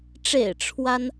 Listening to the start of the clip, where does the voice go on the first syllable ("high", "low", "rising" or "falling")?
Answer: low